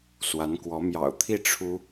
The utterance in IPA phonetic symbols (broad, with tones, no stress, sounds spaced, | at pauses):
s w a˧˥ n k w ɔ˧˥ m j ɑ̰˨˩ ʊ̯ t̪ʰ i˥˩ ʈ͡ʂʰ u˥